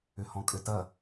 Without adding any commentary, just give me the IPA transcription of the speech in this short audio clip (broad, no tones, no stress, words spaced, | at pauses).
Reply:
ʏhɔ̃kʼʏtɐ